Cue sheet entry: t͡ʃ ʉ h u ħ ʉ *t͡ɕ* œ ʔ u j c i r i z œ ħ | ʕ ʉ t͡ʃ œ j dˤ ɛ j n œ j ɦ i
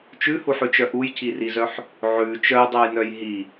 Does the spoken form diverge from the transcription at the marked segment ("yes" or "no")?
yes